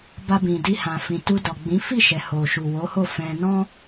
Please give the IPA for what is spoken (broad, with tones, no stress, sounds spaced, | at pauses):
b a˧ b ĩ˨ d i˧ h ã˨ f ĩ˨ t u˧ d ɔ˨ ɡ͡b ĩ˨˦ f i˦˨ ʃ ɛ˨ h o˨ ʃ u˨ w o˨˦ h o˦˨ f ɛ̃˧ n ɔ̃˦